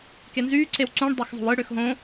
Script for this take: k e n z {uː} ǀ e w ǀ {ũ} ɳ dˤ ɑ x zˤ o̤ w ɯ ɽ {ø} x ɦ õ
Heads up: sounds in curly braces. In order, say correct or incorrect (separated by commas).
incorrect, correct, correct